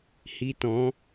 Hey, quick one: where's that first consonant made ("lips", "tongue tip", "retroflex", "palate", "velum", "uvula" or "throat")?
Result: throat